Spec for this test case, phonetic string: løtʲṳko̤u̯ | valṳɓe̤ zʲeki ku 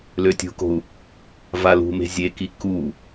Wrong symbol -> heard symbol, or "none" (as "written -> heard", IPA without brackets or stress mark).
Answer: ɓ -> m